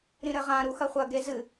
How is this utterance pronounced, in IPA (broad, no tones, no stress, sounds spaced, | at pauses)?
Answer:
ɾ ĩ ɾ ɘ ʁ ã ɾ u x ɐ χʷ ɐ ɡ e z ɨ